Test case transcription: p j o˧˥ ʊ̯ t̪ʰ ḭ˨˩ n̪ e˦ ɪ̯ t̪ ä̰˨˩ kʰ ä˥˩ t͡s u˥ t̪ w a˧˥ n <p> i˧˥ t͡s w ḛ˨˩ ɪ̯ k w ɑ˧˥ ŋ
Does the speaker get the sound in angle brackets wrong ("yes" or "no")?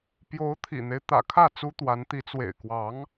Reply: yes